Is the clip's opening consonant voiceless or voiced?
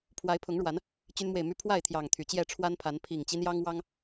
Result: voiceless